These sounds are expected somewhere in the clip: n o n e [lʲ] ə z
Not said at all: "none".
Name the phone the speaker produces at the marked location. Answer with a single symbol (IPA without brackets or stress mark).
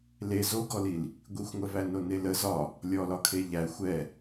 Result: l